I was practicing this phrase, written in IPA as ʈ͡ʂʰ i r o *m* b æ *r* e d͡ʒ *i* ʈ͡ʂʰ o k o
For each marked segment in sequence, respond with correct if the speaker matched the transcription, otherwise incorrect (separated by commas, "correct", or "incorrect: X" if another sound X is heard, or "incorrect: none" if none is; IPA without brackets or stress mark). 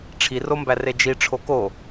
correct, correct, correct